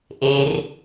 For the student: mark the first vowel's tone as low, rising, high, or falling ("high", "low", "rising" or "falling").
low